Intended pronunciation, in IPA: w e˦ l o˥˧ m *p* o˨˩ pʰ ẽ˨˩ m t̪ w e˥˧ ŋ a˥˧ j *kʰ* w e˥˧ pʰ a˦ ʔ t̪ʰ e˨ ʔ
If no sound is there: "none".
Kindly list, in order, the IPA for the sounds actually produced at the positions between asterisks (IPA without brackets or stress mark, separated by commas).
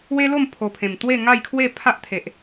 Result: pʰ, kʰ